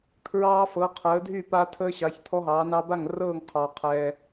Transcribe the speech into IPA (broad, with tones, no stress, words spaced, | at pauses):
kʰɹɑː˦ fɤ˨˦qʰəː˨˦dʱy˥˨ pa˦tʰəː˦ɕɑ˨˦ç tʰɔ˦ɦɑː˨˦nɑ˦ba˥˨ŋ rɤː˥˨ŋqʰɔ˨ qʰɛ˨